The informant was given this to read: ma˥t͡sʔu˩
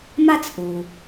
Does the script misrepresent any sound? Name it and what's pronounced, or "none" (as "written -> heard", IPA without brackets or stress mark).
none